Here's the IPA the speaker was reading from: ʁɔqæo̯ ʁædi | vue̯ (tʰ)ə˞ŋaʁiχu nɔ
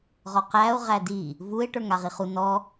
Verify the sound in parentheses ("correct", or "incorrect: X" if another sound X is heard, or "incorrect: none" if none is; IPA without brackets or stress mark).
incorrect: ʈ